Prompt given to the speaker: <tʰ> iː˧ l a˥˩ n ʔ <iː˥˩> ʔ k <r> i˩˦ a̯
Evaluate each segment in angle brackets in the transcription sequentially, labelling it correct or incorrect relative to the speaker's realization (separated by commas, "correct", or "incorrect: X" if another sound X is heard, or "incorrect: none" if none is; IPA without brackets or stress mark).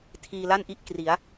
correct, incorrect: i˥˩, correct